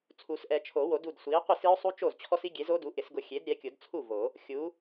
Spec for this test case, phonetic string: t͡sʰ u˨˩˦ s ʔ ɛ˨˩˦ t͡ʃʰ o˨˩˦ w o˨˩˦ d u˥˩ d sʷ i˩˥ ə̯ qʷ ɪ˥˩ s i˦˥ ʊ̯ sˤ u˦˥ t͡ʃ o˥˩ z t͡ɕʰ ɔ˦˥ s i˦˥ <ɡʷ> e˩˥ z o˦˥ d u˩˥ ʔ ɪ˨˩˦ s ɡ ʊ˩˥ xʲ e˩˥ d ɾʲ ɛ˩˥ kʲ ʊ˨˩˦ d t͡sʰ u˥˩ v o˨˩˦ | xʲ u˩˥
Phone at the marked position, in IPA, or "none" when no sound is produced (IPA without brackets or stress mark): ɡʲ